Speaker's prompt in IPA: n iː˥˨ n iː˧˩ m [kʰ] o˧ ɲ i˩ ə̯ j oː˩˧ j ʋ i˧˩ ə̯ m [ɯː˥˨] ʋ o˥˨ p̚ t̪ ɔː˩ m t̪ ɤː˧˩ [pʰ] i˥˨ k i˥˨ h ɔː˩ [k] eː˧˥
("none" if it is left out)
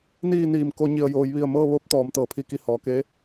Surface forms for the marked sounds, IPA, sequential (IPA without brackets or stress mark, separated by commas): k, ɤː˥˨, pʰ, k